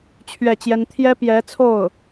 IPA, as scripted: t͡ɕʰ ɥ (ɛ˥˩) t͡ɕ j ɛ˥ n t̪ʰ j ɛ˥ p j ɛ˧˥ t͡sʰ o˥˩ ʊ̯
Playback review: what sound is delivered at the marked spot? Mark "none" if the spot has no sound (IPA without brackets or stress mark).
ɛ˥˩